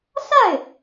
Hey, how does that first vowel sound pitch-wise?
falling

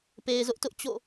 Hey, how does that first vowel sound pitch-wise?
low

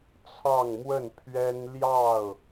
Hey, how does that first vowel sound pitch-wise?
falling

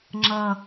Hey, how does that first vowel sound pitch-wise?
low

